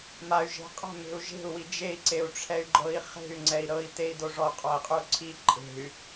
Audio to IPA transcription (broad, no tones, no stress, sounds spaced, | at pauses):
m a y̯ ʒ e̤ qʼ a̤ m e̤ u̯ ʒ e̤ u̯ w i d͡ʒ e i̯ ǀ e u̯ ʈ͡ʂʰ ɛ y̯ ɡ͡ǃ ɤ i̯ χ e̤ y̯ ŋ͡ǀ ɛ i̯ ɾ ɤ i̯ t e i̯ d o ʐ ɔ qʼ ɔ i̯ qʼ u ǀʰ i ǃʼ e̤ y̯